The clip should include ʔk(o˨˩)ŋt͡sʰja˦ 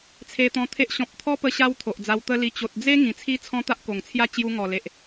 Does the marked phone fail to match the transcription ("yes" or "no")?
no